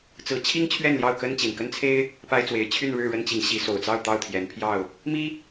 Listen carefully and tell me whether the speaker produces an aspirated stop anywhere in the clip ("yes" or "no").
yes